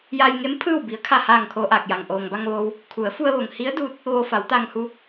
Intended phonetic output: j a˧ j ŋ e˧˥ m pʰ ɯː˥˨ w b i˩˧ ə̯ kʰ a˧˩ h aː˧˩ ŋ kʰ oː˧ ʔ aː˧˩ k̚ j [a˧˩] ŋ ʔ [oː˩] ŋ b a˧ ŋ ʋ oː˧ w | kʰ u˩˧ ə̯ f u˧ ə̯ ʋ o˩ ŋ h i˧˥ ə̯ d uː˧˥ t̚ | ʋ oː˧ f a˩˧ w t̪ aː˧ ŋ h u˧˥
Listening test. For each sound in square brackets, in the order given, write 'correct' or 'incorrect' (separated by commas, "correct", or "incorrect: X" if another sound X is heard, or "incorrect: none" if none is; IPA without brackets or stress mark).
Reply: incorrect: a˩, correct